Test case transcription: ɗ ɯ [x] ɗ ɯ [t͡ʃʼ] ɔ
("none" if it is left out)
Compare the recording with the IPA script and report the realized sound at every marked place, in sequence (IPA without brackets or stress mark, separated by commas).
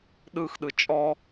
x, t͡ʃʼ